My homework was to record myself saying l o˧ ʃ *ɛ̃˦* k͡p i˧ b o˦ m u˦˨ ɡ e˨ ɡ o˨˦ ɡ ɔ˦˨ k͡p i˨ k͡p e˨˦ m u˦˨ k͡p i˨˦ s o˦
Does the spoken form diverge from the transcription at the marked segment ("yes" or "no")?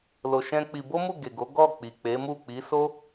no